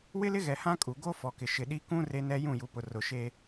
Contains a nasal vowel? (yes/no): yes